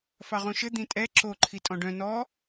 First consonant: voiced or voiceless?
voiceless